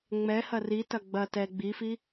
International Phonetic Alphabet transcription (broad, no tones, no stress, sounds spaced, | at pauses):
ŋ͡m ɛ h ɐ r i t ɐ ɡ͡b ɐ t ɛ ɡ͡b i f i